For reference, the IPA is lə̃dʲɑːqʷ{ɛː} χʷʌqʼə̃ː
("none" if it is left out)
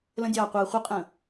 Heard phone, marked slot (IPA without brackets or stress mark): ɛː